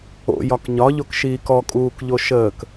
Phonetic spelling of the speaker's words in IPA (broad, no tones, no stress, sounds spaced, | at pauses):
o̰ j ɒ k ɲ ɒ ʎ o k ʃ iː k ɔ kʼ uː k ʎ o ʃ əː k